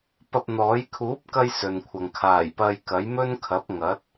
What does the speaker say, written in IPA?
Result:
p ɐ˧ p̚ n̪ ɔː˨˥ j kʰ uː˨˥ p̚ k ɐ˧ j s ɵ˨ n kʷʰ ɐ˨ ŋ kʰ aː˨˩ j p ɐ˧ j k ɐ˨˥ j m ɵ˥ n kʰ ɐ˨˥ p̚ ŋ ɐ˨˥ t̚

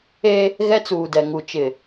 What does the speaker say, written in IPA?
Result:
e˦ | ɣ ɛ˦ t͡s uː˨ d ɛ˨ ŋ u˨ t͡ʃ ɪ˨

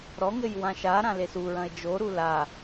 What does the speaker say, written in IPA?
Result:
ɾ ɔ ŋ ɘ j w ã ʃ a ɾ ã l e s u ɹ ɐ̃ e̯ d͡ʒ o ɾ u l a

